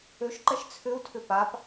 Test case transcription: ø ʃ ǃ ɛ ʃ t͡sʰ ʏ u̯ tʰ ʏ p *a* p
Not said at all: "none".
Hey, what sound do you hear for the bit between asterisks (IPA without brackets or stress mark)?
a